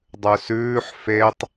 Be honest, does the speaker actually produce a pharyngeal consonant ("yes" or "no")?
yes